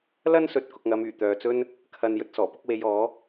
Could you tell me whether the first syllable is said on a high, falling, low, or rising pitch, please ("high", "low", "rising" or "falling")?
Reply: high